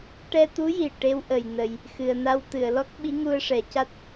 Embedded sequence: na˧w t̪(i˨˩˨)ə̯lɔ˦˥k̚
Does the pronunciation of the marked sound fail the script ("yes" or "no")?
yes